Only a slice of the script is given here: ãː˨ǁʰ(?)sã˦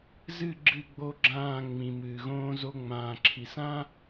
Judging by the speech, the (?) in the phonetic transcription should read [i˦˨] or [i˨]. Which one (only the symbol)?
i˨